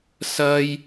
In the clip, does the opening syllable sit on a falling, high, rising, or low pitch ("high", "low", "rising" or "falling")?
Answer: high